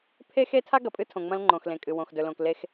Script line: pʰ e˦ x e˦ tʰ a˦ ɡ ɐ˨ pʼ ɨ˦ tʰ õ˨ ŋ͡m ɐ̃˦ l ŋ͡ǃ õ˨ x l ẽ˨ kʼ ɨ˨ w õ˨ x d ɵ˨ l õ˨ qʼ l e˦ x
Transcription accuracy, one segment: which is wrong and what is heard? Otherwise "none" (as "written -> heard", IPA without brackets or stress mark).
qʼ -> k